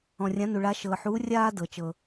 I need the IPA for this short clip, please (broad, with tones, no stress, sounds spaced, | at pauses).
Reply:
ɔ̃˩ rʲ ã˩˥ n u˩ ɭ a˩˥ ʃ ɤː˩ ħ uː˩˥ rʲ aː˦ d ɤ˩ t͡ʃ ɤ˩